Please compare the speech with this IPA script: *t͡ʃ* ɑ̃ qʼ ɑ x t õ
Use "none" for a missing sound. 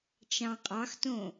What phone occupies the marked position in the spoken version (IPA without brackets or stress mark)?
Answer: t͡ʃ